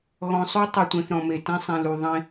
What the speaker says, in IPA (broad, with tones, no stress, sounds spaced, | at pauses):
ɣ ɔ̃˨ sˤ u˦ tˤ ɯ˨ tʷ ẽ˨ θ ɾ ɔ̃˨ m e˨ t ɛ̃˦ sˤ ĩ˨ l u˨ ðˤ ĩ˦